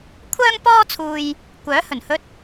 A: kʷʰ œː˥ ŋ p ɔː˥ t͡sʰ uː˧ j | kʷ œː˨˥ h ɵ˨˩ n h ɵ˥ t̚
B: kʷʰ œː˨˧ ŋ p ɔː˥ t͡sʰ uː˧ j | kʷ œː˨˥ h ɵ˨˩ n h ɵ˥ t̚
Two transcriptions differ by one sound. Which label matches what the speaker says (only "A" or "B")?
A